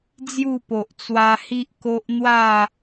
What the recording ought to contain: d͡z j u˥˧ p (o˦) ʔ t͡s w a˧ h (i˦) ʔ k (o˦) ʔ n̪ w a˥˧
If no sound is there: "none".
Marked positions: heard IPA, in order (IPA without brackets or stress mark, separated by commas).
o˨, i˦, o˦